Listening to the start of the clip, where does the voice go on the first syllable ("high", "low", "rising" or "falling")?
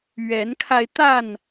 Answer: rising